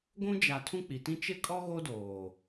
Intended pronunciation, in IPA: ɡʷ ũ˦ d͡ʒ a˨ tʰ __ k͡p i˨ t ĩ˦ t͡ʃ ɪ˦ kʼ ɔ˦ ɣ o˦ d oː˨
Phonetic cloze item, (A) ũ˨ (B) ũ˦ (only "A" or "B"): B